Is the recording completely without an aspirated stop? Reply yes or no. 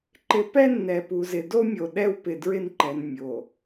yes